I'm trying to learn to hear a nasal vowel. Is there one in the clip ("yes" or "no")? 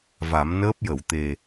no